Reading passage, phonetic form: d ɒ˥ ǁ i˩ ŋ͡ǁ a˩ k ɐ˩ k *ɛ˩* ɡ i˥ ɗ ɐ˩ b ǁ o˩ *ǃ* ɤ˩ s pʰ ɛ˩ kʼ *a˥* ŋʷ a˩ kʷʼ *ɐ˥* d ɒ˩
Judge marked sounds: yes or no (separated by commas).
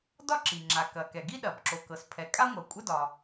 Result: yes, no, yes, yes